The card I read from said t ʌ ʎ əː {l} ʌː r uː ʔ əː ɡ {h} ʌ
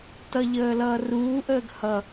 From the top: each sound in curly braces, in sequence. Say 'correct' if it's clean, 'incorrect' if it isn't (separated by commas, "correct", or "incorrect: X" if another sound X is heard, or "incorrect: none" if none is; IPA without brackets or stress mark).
correct, correct